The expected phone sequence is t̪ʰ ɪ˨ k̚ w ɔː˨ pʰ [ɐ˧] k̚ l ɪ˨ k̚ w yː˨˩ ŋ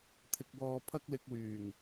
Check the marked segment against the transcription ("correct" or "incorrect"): correct